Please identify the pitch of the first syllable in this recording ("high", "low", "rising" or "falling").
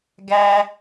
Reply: low